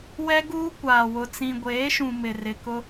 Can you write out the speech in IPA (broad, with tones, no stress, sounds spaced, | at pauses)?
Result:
w ɛ˦ ɡ uː˦ kʷ aː˨ w ʊ˨ t͡s ĩ˨ ɡʷ eː˨˦ ʃ ũ˨ m ɪ˨ r ɪ˨ k ʊ˦